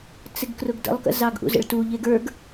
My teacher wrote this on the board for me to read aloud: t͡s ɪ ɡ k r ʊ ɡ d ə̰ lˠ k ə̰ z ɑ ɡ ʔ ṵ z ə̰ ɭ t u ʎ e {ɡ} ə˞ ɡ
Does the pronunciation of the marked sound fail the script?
no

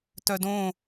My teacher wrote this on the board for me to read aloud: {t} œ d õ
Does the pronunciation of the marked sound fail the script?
no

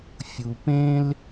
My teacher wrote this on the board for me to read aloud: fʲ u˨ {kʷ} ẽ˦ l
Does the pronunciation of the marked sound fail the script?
yes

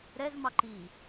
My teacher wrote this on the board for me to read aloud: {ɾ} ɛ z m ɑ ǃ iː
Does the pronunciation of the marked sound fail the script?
no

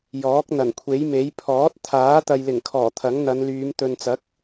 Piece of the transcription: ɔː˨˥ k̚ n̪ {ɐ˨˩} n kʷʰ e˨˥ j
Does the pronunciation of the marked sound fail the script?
no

